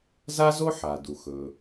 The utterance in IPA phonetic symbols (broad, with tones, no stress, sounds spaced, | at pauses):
z a˥ z o˥ ħ a˩ d u˩ x ɵ˩